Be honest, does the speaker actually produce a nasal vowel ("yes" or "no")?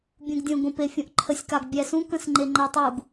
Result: yes